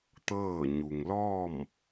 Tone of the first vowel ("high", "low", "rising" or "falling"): falling